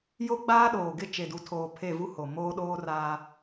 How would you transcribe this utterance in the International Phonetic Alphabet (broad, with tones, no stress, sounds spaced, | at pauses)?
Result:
j o˦ ɡ͡b aː˦ ɗ oː˨ ɡ ɪ˦ t͡ʃ e˨ d u˨ tʰ oː˨ pʰ e˦˨ v u˦ h o˨ m oː˦ ɗ oː˦ r aː˦